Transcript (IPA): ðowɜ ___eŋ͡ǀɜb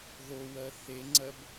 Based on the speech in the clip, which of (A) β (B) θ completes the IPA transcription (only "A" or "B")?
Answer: B